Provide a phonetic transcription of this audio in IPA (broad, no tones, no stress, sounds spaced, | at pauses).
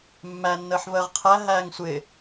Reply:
mː æ nː əː ħ v əː ʁ qʰ æ ɦ æː ŋ sʷ ɪː